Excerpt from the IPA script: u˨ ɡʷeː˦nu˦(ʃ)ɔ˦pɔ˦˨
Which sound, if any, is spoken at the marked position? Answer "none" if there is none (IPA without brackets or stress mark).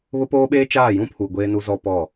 z